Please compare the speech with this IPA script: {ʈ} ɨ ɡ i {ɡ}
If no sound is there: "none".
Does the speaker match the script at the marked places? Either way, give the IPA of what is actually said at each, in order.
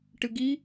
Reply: ʈ, none

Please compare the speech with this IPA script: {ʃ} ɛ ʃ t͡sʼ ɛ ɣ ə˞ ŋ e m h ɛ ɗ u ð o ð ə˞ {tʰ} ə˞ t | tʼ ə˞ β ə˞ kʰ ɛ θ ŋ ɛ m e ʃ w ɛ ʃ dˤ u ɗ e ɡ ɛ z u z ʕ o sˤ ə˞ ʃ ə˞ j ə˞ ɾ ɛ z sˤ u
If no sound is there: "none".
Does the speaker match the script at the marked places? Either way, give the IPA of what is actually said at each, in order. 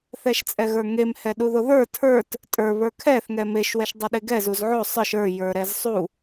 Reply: θ, tʰ

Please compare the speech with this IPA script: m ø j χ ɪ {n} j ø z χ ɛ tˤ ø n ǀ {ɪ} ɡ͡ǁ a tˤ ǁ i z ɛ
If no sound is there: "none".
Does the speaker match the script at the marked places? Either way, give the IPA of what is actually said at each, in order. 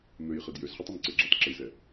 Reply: d, ɪ

